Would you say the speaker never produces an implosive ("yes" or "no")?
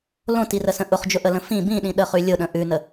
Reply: no